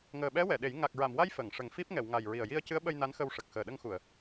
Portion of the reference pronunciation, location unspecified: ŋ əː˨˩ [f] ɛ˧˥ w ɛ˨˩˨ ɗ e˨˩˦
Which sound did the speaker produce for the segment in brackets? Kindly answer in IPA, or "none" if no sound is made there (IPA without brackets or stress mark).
ɓ